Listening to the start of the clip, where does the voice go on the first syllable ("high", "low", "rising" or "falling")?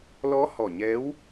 rising